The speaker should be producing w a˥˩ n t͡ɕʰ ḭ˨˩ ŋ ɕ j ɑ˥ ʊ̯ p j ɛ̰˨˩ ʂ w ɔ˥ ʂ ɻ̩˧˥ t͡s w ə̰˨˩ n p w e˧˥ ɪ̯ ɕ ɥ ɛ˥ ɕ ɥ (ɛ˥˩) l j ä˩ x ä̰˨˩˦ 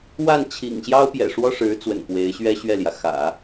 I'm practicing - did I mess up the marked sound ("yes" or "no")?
no